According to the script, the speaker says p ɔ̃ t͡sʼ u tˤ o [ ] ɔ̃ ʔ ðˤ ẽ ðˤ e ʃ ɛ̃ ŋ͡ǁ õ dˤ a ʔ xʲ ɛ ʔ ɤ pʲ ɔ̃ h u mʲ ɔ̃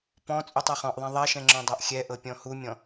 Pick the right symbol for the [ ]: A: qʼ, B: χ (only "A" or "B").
B